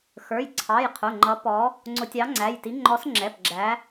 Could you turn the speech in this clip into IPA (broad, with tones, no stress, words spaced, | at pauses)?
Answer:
xə˞˩˧˩jǀʰɑ˩˧˩jqʰʊ˩˧˩ŋ͡ǃʌ˨˥ pɔ˨˥ | ŋ͡ǀʊ˨˥tʲɑ˨˥ŋ͡ǀæ˩˧˩jti˨˥ ŋ͡ǃɔ˨˥sŋ͡ǁɛ˩˧˩p ɡ͡ǁæ˨˥